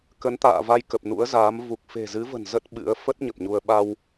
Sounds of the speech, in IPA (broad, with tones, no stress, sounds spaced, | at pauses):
k ə˨˦ n t̪ a̰ː˧˨ v a˧ j k ə˨˩ p̚ n ṵ˧˥ ə̯ z aː˨˦ m v u˨˩ k̚ f e̤˨˩ z ɨ˨˦ v ə̤˨˩ n z ə˦˥ t̚ ɓ ɨ̰˧˥ ə̯ f ə˦˥ t̚ ɲ ə˨˩ p̚ ɲ u˧ ə̯ ɓ a˧ w